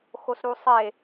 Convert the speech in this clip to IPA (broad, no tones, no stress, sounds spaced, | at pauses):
x o s ɾ u sˤ e